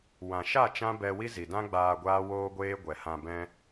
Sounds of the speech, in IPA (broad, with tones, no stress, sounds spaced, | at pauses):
w ã˨ ʃ a˦˨ t͡ʃ ã˦ b ɛ˧ w i˦ z i˨ d ã˦ ɡ͡b aː˧ ɡʷ aː˦ w oː˦ ɡʷ eː˦ ɡʷ ɛ˧ h ã˧ b ɛ̃˦